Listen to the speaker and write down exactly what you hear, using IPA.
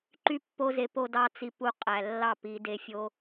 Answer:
ǃ y˦ pː o˦ z e˧ p o˦ d ɑ˦ t͡s i˧ p u˧ qʼ æ˨ lː ɑ˦˨ p i˧ d e˧ fʲ o˦

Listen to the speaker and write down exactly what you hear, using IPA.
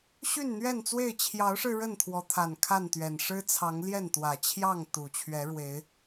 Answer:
ɕ y˥˨ n n̪ ɥ ɛ˥˨ n t͡s w e˥˨ ɪ̯ t͡ɕʰ j ɑ˨˦ ʊ̯ ʂ ɻ̩˧ ɻ ə˥˨ n t̪ʰ w ɔ˨˦ t̪ʰ a˨˩ n kʰ a˥˨ n t̪ ɥ ɛ˨˩ n ʂ ɻ̩˦ t͡sʰ ɑ˨˦ ŋ l j ɛ˥˨ n t̪ w ä˨˩ t͡ɕʰ j ɑ˥˨ ŋ t̪ u˨˩ t͡ɕʰ ɥ ɛ˨˦ ɻ w e˨˦ ɪ̯

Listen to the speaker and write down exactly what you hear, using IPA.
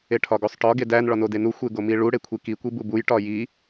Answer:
e ʈʰ ɒ ɡ o sˤ ʈ ɒ ɡ e d æ n ɭ ɒ n o d e n u xʷ e ɡ o m i ɭ u ɽ e kʷʰ i k i kʷ i b u b u j ʈ ɒ j i

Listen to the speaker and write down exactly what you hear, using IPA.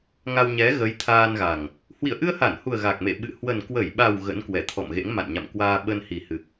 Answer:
ŋ a˧ w ɲ ɛ˨˦ ɣ ə˨˦ j t̪ʰ aː˧ n ɣ a˨˩ ŋ | h w ḭ˧˨ ə̯ ʔ ɨ˧ ə̯ h a˧˩ n h u˨˩ ə̯ ɣ a˨˩ k̚ m ḛ˧˨ ɓ ɨ̰˧˨ h w ə˨˩ n k w ə˧˩ j ɓ a˨˩ w ɣ ə̰˧˥ n k w ɛ˧˩ t̪ʰ ɔ̰˧˨ m ɣ ḛ˧˥ ŋ m a̰˧˨ n ɲ a̰˧˨ m k w aː˧ ɓ ə˧ n h i˨˩ h ɨ˨˩ k̚

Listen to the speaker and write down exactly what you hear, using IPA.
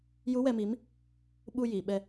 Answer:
j u˧˥ w ɛ˧ m i˧˥ m | ɓ u˧ j i˨˩˨ ɓ ɛ˧

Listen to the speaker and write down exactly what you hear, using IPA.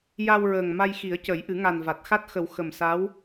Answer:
j a˧ w ɹ əː˨˩ ŋ m a˧ j x i˨˩˦ ə̯ c ə˨˩˦ j ʔ ɨ˨˩˦ ŋ a˨˩ n v a˨˩ t̚ x a˦˥ t̚ x ə˨˩˦ w x ə˨˩ m s a˧˥ w

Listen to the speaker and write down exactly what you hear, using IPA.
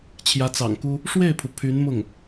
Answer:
t͡ɕʰ j ä˧˥ t͡s ɑ̰˨˩ ŋ k u˥ | ʂ w e˥˩ ɪ̯ pʰ u˩ pʰ y˧˥ n m ʊ˥˩ ŋ

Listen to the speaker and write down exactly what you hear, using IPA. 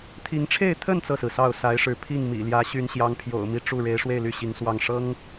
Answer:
t̪ʰ i˧˥ ŋ ʈ͡ʂʰ e˥˧ ɪ̯ t̪ʰ ə˥˧ n t͡s ɤ˥˩ s ɹ̩˩ s ɑ˥˩ ʊ̯ s a˧˥ ɪ̯ ʂ ɻ̩˧˥ pʰ i˥˩ ŋ m ḭ˨˩ l j ä˧˥ ɕ y˧˥ n ɕ j ɑ˧˥ ŋ pʰ j o̰˨˩ ʊ̯ m i˧˥ ʈ͡ʂ u˥˩ ɻ e˧˥ ɪ̯ ʂ w e˥˧ ɪ̯ l y˥˩ ɕ i˧˥ ŋ s w ɑ˥˩ ŋ ʂ ɤ˥ ŋ

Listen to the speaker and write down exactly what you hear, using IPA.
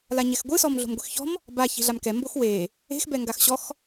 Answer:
l a ɲ ɛ x ɡʷ ɯ s ɔ m ɮ o̤ m ɡʷ i x ç ɔ̤ m | b a ç i̤ ɮ a m k ɛ m b o x w e | e̤ x b ɛ ŋ ɡ a x ɕ ɔ x

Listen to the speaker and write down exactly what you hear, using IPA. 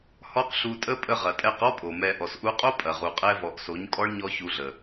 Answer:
h ɔ˦ q ɬ u˧ tʼ ə˦ pʼ ə˧ ʁ ɐ˨ tʼ ɛ˧ q ɔ˦ pʼ o˨ m ɛ˧ ʔ ɔ˨ s ʔ u˦ qʼ o˦ pʼ ɐ˨ ʁ u˨ qʼ ɛ˦ v ɔ˨ ʔ s o˨˦ ɲ kʼ ɔ˦ ɭ ɲ ɔ˦ ç u˧ ɮ ə˨

